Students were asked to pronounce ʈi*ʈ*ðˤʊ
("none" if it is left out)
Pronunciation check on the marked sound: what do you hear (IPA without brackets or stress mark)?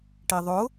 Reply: none